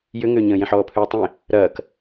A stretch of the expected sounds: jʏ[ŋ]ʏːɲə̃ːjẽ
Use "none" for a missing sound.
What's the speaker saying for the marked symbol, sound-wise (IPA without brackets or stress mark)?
ŋ